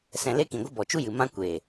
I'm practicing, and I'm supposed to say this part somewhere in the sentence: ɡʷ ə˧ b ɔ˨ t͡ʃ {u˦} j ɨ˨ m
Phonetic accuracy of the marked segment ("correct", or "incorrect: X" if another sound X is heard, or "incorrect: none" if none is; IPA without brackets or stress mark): correct